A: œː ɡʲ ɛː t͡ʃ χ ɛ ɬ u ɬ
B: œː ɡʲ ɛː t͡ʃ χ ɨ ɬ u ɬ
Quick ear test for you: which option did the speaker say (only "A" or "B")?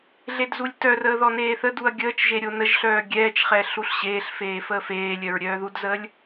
A